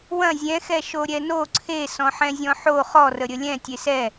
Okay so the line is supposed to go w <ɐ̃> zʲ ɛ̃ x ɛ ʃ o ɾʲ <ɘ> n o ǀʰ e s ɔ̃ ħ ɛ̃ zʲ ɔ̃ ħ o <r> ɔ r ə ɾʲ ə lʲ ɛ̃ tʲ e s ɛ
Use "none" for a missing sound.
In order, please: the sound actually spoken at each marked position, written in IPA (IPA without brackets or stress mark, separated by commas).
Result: ɐ̃, ɛ, χ